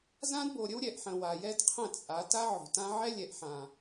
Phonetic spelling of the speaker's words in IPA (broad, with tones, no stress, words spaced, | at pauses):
zã˦dbo˨ɾʲə˦w ɾʲɛ˨ʔħə̃˨ wa˨jɛ˦dqʰə̃˦˨t͡sʼa˨˦ ta˦ʕo̤˨tã˦ ʕɛ˦lʲɛ˨ʔħã˨